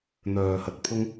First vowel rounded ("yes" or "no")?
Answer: yes